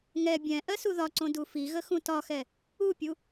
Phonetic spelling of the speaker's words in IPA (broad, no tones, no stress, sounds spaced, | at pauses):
ŋ ɛ bʲ ɛ̃ ʔ ɜ s u ð ɒ ǀ õ d u f i ɣ ə x ũ t ɒ x ɛ | u pʲ u